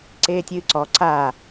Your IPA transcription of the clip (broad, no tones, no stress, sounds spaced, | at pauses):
ǀ eː tʲ ɨː ǀ ɔ ǀ a